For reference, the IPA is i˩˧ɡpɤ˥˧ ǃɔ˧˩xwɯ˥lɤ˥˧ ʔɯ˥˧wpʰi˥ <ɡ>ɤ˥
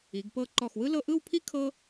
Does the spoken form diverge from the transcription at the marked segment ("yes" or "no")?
yes